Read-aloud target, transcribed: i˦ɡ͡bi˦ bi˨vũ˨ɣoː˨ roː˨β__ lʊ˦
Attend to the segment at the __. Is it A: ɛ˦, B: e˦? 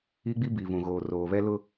A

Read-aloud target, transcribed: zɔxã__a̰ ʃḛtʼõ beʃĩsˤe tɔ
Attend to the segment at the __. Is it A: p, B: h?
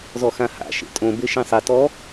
B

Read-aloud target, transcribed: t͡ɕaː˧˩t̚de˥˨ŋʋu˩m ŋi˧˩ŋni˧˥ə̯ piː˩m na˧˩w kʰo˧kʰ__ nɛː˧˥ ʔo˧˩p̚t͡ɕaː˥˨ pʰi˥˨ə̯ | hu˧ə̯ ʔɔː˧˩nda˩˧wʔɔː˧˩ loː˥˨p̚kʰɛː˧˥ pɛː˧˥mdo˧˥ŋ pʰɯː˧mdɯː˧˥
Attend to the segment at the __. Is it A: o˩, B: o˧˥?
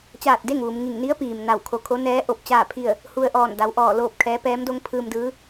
B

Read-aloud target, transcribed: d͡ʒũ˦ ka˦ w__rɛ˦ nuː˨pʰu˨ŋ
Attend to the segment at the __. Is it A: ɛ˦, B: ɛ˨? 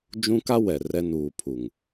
B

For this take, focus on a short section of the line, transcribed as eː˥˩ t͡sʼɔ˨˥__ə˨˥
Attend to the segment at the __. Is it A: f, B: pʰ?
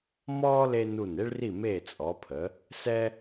B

